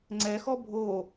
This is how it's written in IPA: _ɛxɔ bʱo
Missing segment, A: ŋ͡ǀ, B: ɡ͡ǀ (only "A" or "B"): A